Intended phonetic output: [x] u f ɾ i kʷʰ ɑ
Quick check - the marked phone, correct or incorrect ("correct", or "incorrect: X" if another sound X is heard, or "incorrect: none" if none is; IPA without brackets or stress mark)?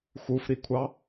correct